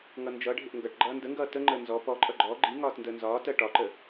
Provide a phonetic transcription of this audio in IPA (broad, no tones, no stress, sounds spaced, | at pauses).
ŋ ʌ n d͡ʒ ʌ ɖʱ ɪ ʔ ŋ ɡ ʌ ʈ ɡ͡ǃ ʌː n d ə ŋ ɡ ʌː t ə ŋ͡ǃ əː n z ɔ p ɔ ǃʼ ʌ ɡ͡ǃ ɔ ɡ͡ǃ i ŋ ɒː t n d əː n z ɒː t ɜ ʈ ɒ ǃ ə